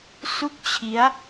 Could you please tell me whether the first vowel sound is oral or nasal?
oral